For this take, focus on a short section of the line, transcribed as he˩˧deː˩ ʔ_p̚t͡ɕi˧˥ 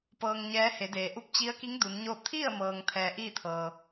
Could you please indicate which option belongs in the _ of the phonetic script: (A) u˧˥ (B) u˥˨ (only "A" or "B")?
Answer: A